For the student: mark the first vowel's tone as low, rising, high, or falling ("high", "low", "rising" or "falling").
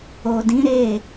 low